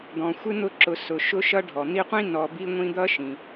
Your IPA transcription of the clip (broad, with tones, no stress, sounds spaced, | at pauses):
d̪ ɔ̃˩ xʷ ɪ˥ n̪ ʊ˦ ǁ ʊ˨ s ʊ˩ ʃ ʊ˦ ʃ ʌ˦ ɖʱ ɔ˩ n̪ i˦ qʷ ĩ˥ n ɔ˨ b i˥ ŋʷ ĩ˥ d̪ ʌ˥ ʃ ĩ˩